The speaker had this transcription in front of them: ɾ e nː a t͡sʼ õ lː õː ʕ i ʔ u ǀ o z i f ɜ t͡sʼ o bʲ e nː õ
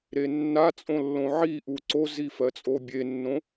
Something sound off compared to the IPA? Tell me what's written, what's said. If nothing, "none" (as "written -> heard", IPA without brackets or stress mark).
õː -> õ